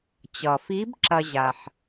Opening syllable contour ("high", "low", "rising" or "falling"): low